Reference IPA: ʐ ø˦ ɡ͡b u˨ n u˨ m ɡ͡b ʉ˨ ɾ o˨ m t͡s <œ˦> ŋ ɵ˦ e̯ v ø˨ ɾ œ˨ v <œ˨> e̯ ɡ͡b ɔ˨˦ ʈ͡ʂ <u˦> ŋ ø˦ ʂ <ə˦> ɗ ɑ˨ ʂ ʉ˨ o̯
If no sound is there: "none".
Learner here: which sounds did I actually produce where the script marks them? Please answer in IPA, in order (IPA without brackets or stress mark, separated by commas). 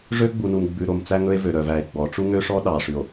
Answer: æ˦, æ˨, u˦, ɔ˦